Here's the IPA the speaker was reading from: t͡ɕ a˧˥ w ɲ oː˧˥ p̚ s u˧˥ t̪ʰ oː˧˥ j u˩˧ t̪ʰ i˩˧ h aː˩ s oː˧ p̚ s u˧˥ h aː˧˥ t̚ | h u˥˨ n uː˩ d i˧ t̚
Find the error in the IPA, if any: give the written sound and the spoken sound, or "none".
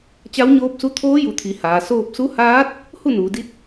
none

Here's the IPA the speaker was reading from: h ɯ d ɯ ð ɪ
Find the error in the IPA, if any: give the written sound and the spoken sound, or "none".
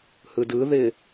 none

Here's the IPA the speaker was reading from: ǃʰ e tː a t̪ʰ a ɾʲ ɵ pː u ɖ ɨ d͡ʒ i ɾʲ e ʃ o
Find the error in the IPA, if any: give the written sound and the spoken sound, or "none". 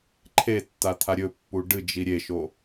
none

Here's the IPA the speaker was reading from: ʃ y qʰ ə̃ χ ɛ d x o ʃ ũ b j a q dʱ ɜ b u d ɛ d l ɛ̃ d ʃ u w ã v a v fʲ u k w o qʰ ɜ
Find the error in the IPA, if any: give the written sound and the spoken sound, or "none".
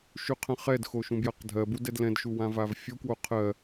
none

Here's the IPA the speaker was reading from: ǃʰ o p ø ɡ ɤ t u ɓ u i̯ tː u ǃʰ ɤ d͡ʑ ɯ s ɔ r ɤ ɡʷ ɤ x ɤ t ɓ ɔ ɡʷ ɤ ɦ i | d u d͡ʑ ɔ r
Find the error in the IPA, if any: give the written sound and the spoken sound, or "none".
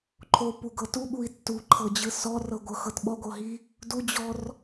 ø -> u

